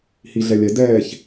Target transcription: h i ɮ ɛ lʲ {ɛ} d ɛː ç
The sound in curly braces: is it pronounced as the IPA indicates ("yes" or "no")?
yes